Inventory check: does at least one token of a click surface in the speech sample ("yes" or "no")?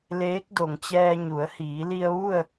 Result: no